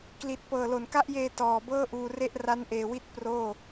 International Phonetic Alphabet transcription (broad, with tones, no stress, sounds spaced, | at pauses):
k l i˨˩ t̚ p ɤː˨˩ l o˨˩ n k a˦˥ ʔ j eː˧ t ɔː˨˩ b ɤː˥˩ ʔ uː˧ r e˥˩ ʔ r a˦˥ n ʔ eː˨˩ w i˦˥ t̚ p r oː˥˩